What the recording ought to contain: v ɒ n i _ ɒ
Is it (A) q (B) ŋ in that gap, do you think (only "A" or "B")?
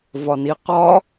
A